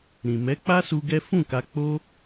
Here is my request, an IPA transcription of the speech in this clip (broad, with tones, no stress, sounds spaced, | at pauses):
ɾ ĩ˨ m ɛ˨˦ k͡p a˦ s u˧ ɡ ɛ˦ f ũ˦˨ k a˧ k͡p o˦